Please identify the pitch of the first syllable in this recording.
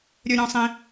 high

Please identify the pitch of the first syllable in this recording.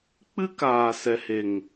high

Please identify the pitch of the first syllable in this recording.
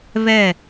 falling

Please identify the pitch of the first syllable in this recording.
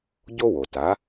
high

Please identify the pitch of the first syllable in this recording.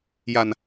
low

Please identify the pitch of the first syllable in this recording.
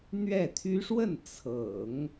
falling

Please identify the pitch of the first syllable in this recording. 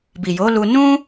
low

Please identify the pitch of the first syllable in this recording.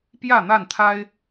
falling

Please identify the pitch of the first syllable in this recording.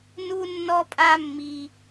high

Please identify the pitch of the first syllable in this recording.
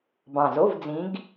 low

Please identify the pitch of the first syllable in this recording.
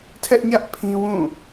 high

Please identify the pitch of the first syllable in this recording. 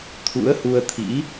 rising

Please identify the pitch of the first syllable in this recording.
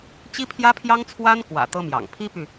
high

